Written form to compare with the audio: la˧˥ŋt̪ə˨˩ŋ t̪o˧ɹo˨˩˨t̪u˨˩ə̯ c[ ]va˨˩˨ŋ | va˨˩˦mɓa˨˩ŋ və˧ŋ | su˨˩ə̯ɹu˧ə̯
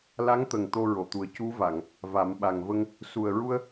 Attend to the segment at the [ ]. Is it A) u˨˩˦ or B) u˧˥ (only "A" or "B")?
B